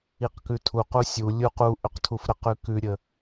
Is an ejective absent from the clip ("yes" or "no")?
yes